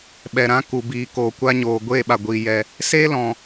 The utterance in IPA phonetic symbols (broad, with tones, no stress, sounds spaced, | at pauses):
ɓ ɛ˨ ɾ ã˦ k u˨ b iː˨ k oː˨ kʷ a˦ ɲ oː˨ ɡʷ eː˦˨ ɓ a˨ ɡʷ iː˨ j ɛ˧ | s eː˦ l ɔ̃˨